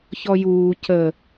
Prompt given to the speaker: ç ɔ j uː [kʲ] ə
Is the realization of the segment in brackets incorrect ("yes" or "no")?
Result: yes